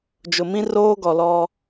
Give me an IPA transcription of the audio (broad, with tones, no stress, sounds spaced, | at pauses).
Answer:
d͡ʒ ʊ˨ m ĩ˦ r oː˦ ɡ ɔ˨ l ɔ˦